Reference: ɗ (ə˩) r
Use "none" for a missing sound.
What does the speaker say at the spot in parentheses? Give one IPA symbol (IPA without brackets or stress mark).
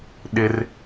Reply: ɪ˩